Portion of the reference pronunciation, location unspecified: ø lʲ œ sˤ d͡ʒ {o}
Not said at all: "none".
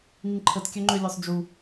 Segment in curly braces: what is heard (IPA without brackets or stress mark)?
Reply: u